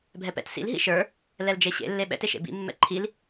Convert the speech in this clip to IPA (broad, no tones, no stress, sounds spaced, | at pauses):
bʱ ɛ p ɛ̰ t s ḭ l ɦ ḭ ʃ ə˞ | l ɛ l d͡ʒ e ɕ ḛ lː e ɓ ɛ̰ t e ʃ ḛ b ḭ mː ɛ̰ ǃʰ i l